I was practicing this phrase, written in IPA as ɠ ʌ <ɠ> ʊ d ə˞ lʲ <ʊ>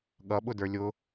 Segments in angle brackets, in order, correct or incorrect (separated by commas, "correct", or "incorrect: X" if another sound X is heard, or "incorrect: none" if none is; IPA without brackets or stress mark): incorrect: ɓ, correct